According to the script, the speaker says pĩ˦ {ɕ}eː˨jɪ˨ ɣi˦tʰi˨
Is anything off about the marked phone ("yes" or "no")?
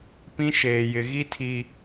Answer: yes